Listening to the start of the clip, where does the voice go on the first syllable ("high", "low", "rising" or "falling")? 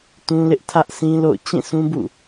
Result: high